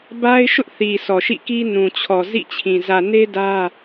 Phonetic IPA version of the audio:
b a˦ ɪ̯ ʃ ʊ˦ ʔ θ i˨ s ɔ˨ ʃ ḭ˦˨ k i˦ n ũ˨ t͡ɕʰ ɔ˨ z ḭ˦˨ t͡ɕʰ ĩ˨ z ä˨ n e˦ d ä˦

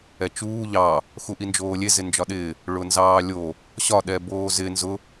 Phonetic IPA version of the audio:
ɛ t͡ʃ uː ʎ ɑ | x u ʔ i n d͡ʒ oː lʲ e z ɪ n d͡ʒ ɒ ɗ ɪː | ɭ ʊ n z ɑː lʲ o | ɕ ɒ ɗ ɛ b oː z ɪ n z ʊ

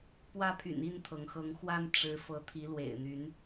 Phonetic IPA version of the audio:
p w ä˦ pʰ y̰˨˩ n i˥˨ n t̪ʰ ɤ˩ ŋ x ɤ˨˦ ŋ x w a˦ n ʈ͡ʂ ɻ̩˨˦ f ɤ˨˦ t̪ʰ i˨˦ l w ḛ˨˩ ɪ̯ n̪ y˨˦ n

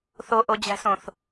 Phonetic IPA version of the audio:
θ o ʔ o d͡ʑ æ̤ s õ θ

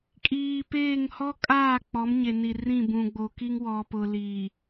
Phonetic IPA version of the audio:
kʼ iː˨ p eː˦˨ ŋ h ɔ˦ kʼ aː˦˨ k͡p ɔ˨˦ m ɲ e˨ n i˨ r ĩ˦˨ b ũ˨ ɡ͡b o˨ k i˦ ŋ w ɔ˨ p ʊ˨ l iː˨

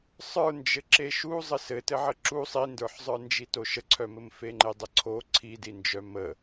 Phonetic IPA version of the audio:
sˤ ə˞ n d͡ʒ ɘ ǁ e ʃ u zˤ ɘ s ɘ t ɘ ʕ ə ǁ u sˤ i n d ə˞ ħ zˤ ə˞ n d͡ʒ i t o ʃ ə ǀʰ œ m ɘ m f e ŋ͡ǃ e dˤ ə ǀʰ o ǀʰ i d i n d͡ʒ œ m ə

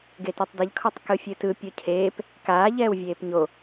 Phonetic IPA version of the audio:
ɡ e t e tˤ d ɛ ʎ kʰ ɔ tˤ k ɯ fʲ ɯ t ɯ pʲ o cʰ eː p | k aː ʎ ɛː w vʲ eː p ɲ o

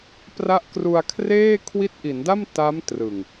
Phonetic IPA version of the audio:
p r a˦˥ ʔ k r u˧ a̯ kʰ r eː˥˩ kʰ w i˦˥ t̚ ʔ i˩˦ n d a˥˩ m t a˦˥ m t r ɯ˨˩ ŋ

